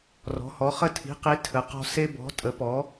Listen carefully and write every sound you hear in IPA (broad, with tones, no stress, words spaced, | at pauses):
rɔ̤˩˥hɔ˩˥ χə˦tʰi̤˩˥qi˩˥ tʰə˩˥qɔ̤˦ se˦bɔ̤˩˥ tʼə˩˥pɔ˩˥